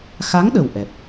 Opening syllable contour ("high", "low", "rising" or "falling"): rising